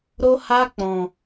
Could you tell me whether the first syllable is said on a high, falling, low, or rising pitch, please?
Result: high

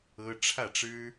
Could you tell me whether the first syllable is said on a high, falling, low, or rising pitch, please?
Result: high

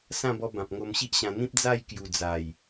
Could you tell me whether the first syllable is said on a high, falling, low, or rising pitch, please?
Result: falling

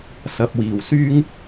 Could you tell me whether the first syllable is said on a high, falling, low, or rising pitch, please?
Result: low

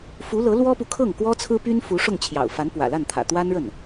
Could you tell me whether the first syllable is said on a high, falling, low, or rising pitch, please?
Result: rising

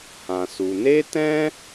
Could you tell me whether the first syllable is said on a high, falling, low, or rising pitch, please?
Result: low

